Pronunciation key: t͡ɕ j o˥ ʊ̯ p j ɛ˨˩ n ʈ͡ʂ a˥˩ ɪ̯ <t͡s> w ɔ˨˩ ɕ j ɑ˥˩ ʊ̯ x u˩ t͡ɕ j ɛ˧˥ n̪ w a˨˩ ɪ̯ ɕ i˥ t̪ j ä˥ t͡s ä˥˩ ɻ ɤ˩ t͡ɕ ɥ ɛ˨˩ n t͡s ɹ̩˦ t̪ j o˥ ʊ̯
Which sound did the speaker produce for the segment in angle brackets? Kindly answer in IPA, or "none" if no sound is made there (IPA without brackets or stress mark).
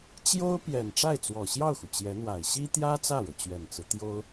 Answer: t͡s